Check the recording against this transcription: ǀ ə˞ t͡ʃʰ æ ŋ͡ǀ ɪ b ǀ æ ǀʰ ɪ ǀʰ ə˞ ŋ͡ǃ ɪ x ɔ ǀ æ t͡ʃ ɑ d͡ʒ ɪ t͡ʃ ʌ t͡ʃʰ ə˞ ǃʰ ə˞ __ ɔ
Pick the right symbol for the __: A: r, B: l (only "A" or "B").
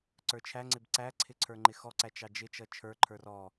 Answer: A